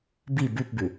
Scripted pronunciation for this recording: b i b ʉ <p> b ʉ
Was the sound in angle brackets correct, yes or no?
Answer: yes